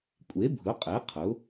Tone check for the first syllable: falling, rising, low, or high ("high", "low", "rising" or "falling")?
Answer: rising